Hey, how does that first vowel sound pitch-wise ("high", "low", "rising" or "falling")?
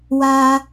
high